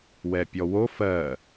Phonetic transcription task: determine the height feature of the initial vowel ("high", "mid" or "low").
mid